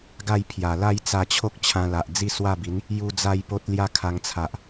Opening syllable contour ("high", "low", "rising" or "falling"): falling